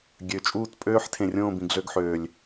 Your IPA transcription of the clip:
ɡʲ ø˨˩ t͡ʃʼ uː˦˨ t pʼ øː˦ ħ tʰ ẽ˨˩ rʲ õː˦˨ b ĩ˨˩ ɡ ɮ ø˦˨ ɡ ħ øː˨˩ lʲ

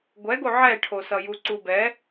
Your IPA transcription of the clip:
ɡʷ ɛ ɡ o ʕ ɛ ʈʰ o s ʌ j u ǀ u b ɛ

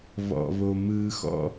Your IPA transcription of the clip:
β ɔ̰˨ β o˨ m ɯː˨ x ɔ̰˦

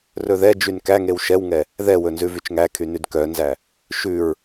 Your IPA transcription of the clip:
r ɵ ð ɛ d͡ʒ y n k æ ŋ e w ʃ ɛ w ŋ ɛ | ð ɛ w ɵ n z ʉ v y t͡ʃ ŋ æ kʰ y n y d k œ n z æ | ʃ ʉ ɹ

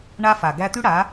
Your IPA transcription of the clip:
ɳ a˦ f a˨ ɡ æ˧ t̪ y˦ ɽ a˨˦

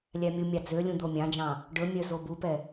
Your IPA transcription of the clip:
lʲ æ mʲ u mʲ ɑ d͡z ø lʲ ũ d̪ o mʲ ɑ̃ d͡ʒ ɑ̃ | ɖ ɵ mʲ œ z o b u p ɛ

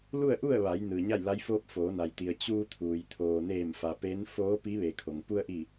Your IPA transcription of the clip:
l u˥˨ ə̯ ʔ u˥˨ ə̯ ʋ a˩˧ j n ɯː˩ ɲ a˥˨ j l a˧˥ j f oː˧˥ p̚ f oː˩˧ n a˩ j t̪ i˩ ə̯ t͡ɕ uː˧ t̪ʰ uː˩ j t̪ʰ oː˩ n eː˧˩ m f a˩ p e˧˥ n f oː˧˥ p i˧˥ ʋ e˩ kʰ o˩ ŋ p u˧ ə̯ ʔ i˧˩

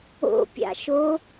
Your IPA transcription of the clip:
o̰ pʲ a̰ ʃ o

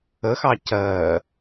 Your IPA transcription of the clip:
ə x ɑ c ɜː

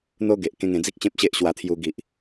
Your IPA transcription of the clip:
n̪ o˦ ɡ e˨ ʔ k ẽ˧ ŋ ẽ˧ d͡z i˦ k̚ ɕ ẽ˦ p̚ ɕ e˦ ʔ ɕ w a˧ t̪ʰ j u˧ ɡ i˨ ʔ

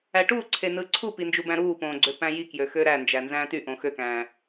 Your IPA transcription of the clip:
æ ʈ uː ǀʰ e n ɯ ǀʰ u p i n d͡ʒ u b æ̃ ɾ uː p õː ɡ͡ǀ ø p æ̃ j i k j ø x ø ɾ æ n d͡ʒ æ n z æ̃ː t y ʔ õ x ø k æ̃ː

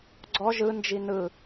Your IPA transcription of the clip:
ɡ͡ǀ ɔ ʒ ɯ n d͡ʒ i n ɯ

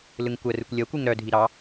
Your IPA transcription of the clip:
l ɯ ŋ kʷ ɜ r ɯ kʷ lʲ ɜ kʷ ɯ ŋ ɾ œ dʱ i ɾ ɑ

